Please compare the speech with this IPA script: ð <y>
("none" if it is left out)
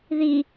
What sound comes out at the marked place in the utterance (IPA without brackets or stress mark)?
i